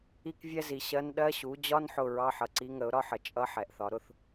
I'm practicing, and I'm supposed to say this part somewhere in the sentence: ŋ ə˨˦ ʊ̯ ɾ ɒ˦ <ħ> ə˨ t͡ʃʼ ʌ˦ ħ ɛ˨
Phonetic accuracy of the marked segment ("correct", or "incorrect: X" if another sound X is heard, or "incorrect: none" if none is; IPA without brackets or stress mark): correct